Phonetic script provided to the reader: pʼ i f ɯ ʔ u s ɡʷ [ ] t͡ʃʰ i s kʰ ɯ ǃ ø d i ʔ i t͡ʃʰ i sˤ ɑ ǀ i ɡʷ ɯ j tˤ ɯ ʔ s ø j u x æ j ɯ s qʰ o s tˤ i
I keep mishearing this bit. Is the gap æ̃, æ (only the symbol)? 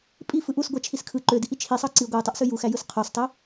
æ